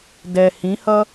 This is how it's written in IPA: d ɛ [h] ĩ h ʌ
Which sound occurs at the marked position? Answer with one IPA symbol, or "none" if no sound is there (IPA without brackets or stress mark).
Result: h